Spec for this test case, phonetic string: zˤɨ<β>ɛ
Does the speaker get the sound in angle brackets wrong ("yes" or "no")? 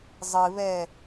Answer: no